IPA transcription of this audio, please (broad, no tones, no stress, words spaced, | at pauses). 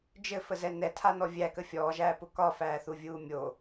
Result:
d͡ʒɘfəzɛ nɛtʰanɔ vʲækə fʲɔːʒæːpʊ kɒfæːθuvʲuː mʲo